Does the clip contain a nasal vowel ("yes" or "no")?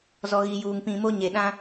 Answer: yes